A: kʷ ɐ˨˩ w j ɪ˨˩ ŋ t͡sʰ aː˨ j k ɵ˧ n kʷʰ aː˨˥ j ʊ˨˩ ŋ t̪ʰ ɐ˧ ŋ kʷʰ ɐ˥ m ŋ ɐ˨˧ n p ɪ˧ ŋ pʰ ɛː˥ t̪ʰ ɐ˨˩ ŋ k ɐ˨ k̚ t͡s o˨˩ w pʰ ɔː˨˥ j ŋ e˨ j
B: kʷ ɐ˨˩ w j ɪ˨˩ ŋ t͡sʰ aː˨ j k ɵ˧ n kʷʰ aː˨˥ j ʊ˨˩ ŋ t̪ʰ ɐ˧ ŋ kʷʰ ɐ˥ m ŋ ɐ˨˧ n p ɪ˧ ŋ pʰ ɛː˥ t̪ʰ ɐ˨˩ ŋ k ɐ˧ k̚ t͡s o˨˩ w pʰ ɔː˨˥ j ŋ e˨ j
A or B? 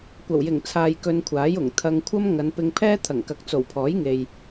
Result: A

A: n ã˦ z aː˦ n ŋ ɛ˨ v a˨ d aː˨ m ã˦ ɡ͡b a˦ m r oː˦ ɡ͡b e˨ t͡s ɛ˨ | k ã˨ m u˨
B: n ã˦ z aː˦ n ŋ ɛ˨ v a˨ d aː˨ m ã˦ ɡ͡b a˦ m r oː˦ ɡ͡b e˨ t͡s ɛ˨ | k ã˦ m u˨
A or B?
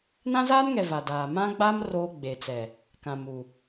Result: A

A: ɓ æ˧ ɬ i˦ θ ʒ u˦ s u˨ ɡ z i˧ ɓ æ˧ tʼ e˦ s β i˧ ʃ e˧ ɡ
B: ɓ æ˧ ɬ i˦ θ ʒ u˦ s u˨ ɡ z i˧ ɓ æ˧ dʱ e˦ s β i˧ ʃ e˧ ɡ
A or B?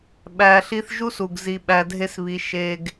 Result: B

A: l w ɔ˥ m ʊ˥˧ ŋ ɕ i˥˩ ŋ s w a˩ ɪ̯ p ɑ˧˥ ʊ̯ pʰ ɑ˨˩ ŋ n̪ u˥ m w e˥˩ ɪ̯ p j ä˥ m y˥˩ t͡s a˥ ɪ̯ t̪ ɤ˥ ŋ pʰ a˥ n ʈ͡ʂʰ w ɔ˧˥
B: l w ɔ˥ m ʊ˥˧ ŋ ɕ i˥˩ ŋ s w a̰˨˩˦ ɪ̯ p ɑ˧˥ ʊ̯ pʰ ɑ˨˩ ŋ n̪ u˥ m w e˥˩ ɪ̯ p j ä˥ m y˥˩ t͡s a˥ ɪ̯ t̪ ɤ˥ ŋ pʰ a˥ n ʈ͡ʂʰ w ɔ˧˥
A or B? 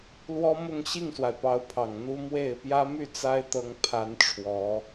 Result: A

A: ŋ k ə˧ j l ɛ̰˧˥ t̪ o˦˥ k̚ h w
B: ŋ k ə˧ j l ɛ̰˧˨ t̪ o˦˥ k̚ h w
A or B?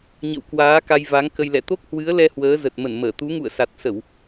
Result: B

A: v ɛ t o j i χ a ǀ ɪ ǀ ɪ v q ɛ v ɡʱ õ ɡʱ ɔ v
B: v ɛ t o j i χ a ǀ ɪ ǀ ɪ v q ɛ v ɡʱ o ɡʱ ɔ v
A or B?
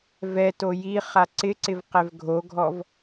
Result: B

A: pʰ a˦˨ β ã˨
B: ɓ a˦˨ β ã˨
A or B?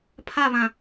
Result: A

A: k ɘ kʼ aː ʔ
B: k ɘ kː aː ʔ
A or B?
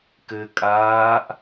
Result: A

